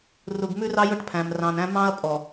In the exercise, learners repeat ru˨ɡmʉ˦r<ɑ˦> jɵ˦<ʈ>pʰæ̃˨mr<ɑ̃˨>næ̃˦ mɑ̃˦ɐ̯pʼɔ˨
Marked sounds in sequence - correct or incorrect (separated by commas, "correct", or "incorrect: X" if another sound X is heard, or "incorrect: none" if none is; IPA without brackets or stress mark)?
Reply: correct, correct, correct